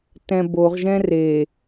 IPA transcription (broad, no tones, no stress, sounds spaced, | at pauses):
t ɛ̃ b o ʁ ʒ ɛ̃ r e